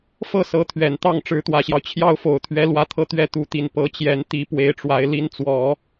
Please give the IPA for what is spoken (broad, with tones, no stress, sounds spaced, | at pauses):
f ɤ˥˩ s ɤ˧˥ t̪ʰ ɥ ɛ˨˩ n t̪ ɑ˥˩ ŋ ʈ͡ʂ ɻ̩˧˥ t̪ w ä˨˩ ɕ j ɑ˦ ʊ̯ t͡ɕʰ j ɑ˥ ʊ̯ f o˨˩ ʊ̯ t̪ʰ ɥ ɛ˧˥ l w ä˥ t̪ʰ ɤ˥˩ t̪ ɥ ɛ˥ t̪ u˧˥ t̪ i˨˩ n p ɤ˧˥ t͡ɕ j ɛ˧˥ n t̪ i˧˥ p w e˧˥ ɪ̯ ʈ͡ʂ w a˧˥ ɪ̯ l i˧˥ n t͡s w ɔ˨˩˦